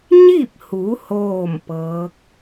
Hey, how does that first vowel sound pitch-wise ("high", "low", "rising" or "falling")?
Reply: falling